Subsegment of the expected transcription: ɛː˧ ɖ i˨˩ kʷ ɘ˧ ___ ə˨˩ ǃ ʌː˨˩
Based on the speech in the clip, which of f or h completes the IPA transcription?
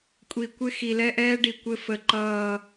f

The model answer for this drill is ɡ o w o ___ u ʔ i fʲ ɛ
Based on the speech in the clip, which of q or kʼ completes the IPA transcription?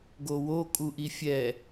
kʼ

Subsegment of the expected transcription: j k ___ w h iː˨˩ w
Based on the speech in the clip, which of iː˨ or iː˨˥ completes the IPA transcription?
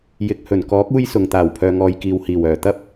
iː˨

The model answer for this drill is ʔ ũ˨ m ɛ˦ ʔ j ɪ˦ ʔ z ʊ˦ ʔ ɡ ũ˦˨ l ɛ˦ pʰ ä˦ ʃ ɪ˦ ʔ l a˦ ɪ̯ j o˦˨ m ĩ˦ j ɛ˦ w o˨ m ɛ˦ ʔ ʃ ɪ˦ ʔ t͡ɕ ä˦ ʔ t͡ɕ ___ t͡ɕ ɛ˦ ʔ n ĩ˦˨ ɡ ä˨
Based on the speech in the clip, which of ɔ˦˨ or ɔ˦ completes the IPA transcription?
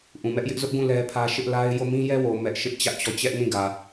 ɔ˦˨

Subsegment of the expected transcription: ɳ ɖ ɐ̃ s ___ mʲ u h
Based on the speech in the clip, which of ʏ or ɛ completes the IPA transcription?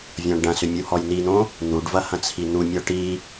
ʏ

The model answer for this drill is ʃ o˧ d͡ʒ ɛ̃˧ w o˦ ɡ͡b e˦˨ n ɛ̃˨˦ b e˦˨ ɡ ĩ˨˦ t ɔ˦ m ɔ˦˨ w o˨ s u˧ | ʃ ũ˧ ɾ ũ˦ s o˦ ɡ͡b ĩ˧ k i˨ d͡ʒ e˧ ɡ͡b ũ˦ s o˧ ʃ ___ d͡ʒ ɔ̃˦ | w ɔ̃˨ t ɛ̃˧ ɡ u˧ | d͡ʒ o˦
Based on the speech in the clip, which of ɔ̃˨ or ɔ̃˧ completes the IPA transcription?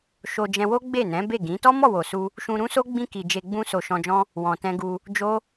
ɔ̃˧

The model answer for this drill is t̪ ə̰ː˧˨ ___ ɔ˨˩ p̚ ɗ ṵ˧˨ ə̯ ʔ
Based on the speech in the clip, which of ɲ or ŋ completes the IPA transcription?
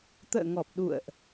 ŋ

